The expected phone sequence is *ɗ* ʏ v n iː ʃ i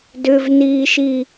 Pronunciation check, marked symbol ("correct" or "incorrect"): incorrect